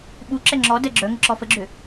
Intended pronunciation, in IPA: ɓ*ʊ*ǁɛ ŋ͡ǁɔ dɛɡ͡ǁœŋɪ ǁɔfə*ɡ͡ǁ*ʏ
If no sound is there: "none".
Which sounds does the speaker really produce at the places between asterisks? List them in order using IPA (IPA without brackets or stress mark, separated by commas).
u, ɡ͡ǁ